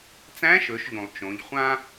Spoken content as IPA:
t͡s æ̃˧˥ ʃ ɵ˩˧ ʃ ʎ ũ˩ lˠ t͡ʃ õ˩˧ ʎ χʷ ã˥

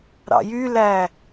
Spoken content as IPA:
ɾ ɑ̰ j y l æ

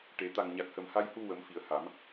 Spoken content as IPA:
ʈ e˨˩˦ t̪ a˨˩ ŋ ɲ a˨˩ k̚ h ə˨˩ m h a˧ j h u˧ w ə˨˩˦ m f i˨˩ ə̯ h a˨˩˦ m

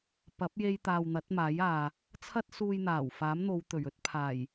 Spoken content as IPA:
p ɐ˨˥ p̚ j e˧ j t̪ aː˨ w n̪ ɐ˨˥ t̚ m aː˨˥ j aː˨ | t͡sʰ ɐ˥ t̚ s uː˧ j n̪ aː˨˩ w f aː˨˥ m n̪ o˨˧ w t̪ ɵ˨˩ ɥ ɵ˧ t̚ pʰ aː˨˩ j

